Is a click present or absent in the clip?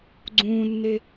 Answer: present